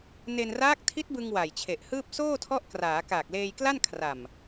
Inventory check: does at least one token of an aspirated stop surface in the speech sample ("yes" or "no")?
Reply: yes